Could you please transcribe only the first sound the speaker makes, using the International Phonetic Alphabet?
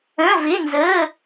ə̃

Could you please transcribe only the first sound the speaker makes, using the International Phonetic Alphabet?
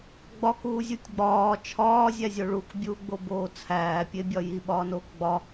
ɡ͡b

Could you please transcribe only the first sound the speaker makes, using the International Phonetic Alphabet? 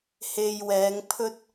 h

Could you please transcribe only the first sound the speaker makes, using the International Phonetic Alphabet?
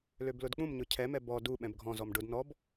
l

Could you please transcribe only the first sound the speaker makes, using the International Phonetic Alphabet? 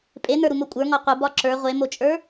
pʼ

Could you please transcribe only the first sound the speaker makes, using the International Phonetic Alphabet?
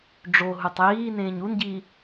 ɖ͡ʐ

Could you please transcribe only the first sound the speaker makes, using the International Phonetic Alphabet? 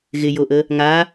ɣ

